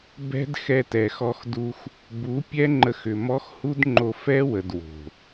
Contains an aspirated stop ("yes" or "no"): no